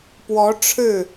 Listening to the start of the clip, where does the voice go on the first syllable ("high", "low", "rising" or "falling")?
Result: rising